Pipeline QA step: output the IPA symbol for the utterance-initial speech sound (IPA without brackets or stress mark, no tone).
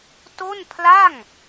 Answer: t